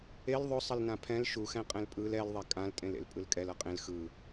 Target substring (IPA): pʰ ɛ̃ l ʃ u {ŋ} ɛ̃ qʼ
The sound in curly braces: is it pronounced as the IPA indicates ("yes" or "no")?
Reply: no